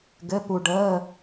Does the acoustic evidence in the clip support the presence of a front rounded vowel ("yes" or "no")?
no